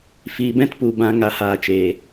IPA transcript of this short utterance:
f iː˨ b ɛ̃˧ t p u˨ b ã˨ ŋ a˨ h aː˨ t͡ʃ eː˨

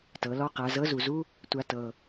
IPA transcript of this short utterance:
t ɤ˩˧ l ɔ˥ q a˩˧ z ɤ˧˥ z u˩ z u˥ | tʷ a˧ t ɤ˩

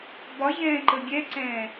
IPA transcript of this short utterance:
b ɒ ʑ ɛ̃ː ǃ ə ɡʲ ɛ ǀ ɛ̃ː

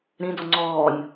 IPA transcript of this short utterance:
ɾ ĩ d ɔ ŋ͡ǀ ɔː nʲ

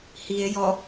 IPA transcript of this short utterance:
h i e̯ j ɔ

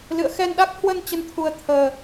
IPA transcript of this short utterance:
l ɨ̰˧˨ ə̯ x ɛ˧ n ɗ a˦˥ k̚ h w ə˧ n t͡ɕ ə˧ n t̪ʰ u˧ ə̯ t̪ʰ əː˧

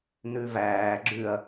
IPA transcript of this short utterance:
n ʉ v æː ɡ͡ǁ ʉ ɐ̯

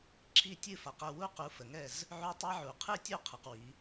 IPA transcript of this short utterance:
ǁ i˥˨ tʲ ɨ˥˨ f a˨˦ q ə˥˨ w u˦˥ q u˨˦ f ə˨ ŋ ɛ˥˨ z | ʕ u˦˥ tˤ i˦˥ ʕ u˨ qʰ ɨ˥˨ tʲ u˥˨ qʰ ə˨ q w i˨˦

